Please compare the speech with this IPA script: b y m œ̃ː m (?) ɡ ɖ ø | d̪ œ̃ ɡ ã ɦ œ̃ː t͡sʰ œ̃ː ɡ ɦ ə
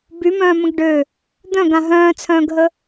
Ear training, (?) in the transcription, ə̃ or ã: ə̃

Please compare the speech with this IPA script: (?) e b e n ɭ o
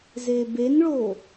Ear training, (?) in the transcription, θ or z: z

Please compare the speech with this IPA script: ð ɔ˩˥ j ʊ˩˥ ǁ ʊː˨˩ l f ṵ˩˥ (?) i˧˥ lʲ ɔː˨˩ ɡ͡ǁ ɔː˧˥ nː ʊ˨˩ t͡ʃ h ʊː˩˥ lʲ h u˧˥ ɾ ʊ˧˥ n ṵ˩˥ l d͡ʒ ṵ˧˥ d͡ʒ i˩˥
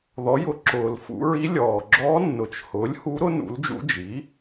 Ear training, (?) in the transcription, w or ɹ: ɹ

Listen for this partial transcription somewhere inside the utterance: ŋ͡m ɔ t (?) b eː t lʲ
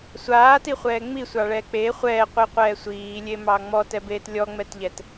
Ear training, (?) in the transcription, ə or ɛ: ɛ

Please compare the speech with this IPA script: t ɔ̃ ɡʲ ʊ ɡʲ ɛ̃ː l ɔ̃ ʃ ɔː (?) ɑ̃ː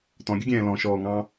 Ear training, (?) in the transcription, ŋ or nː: ŋ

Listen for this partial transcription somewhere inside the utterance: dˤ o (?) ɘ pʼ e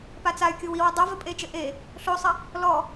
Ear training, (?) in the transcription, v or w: v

